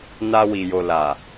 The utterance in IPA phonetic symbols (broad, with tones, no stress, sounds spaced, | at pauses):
n a˧ w i˨ j o˨ l a˨